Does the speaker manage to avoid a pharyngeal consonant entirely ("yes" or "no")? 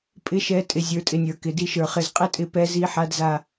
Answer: no